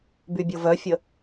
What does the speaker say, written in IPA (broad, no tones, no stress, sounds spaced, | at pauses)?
b y bʲ o v œ fʲ ə